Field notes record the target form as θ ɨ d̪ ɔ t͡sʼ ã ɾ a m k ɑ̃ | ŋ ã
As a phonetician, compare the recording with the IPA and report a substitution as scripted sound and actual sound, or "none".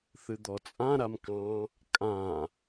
ŋ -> kʼ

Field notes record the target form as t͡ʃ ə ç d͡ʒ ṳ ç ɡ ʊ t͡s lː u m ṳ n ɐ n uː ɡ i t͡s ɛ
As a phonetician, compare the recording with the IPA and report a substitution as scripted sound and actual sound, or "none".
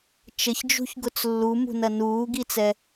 none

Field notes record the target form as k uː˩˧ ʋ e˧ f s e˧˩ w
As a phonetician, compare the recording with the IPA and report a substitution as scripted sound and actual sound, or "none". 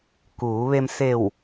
f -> m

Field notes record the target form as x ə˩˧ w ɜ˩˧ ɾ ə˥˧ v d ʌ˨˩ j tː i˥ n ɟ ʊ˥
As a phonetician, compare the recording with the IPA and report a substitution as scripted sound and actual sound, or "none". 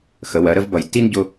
d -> b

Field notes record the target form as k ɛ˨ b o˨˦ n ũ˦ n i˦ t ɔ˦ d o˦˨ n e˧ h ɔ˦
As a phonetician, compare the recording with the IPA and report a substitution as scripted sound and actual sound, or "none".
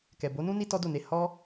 none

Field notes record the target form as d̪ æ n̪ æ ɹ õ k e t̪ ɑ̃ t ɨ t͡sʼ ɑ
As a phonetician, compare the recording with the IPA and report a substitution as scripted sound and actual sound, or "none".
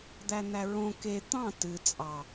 none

